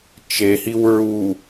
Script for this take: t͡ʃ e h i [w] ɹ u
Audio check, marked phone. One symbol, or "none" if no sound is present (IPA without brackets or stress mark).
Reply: w